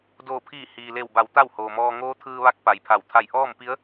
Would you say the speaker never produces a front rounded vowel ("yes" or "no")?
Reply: yes